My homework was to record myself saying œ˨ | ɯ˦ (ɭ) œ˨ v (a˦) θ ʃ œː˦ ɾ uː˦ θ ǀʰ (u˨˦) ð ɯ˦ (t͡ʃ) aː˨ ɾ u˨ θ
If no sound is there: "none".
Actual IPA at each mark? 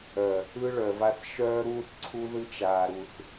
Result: ɭ, a˦, u˦, t͡ʃ

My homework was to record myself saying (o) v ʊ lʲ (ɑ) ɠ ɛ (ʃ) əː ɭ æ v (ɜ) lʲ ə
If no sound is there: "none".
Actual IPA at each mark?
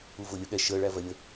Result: u, ə, ʃ, ɜ

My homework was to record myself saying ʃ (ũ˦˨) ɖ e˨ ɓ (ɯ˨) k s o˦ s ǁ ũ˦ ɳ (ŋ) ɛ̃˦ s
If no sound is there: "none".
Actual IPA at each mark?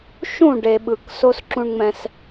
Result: ũ˦˨, ɯ˨, ŋ͡m

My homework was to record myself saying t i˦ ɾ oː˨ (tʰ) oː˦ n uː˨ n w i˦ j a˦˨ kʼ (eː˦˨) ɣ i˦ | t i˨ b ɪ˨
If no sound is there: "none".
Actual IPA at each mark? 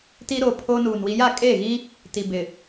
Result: pʰ, e˦˨

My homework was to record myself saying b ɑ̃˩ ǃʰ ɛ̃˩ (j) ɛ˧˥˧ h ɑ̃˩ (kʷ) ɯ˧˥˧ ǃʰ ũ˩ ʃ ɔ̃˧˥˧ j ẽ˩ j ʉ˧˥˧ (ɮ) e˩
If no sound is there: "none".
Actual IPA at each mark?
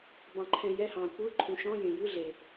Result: j, kʷ, ɮ

